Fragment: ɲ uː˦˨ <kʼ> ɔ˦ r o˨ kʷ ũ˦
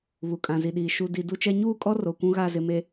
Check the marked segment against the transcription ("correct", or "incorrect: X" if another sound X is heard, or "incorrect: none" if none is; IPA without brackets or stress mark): correct